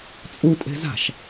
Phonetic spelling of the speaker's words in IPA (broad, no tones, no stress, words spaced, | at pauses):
t͡sʼutʼe̤ za̤ʃ